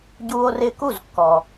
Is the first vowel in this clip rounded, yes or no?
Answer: yes